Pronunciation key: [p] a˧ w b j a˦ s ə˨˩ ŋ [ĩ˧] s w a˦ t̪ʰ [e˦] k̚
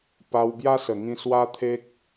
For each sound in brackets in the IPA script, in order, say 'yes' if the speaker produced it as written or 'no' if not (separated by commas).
yes, yes, yes